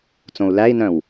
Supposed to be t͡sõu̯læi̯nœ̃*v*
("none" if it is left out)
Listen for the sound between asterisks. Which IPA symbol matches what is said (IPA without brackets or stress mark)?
w